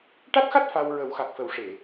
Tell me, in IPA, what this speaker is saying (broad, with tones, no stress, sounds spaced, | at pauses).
ʈ a˦˥ t̚ x a˦˥ t̚ f a˧ w ɹ ə˨˩˦ w x a˨˩ k̚ f ə˨˩˦ w ʂ e˨˩˨